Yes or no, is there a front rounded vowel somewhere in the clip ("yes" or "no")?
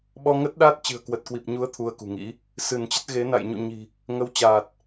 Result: no